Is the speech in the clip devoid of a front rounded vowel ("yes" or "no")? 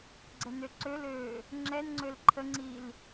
no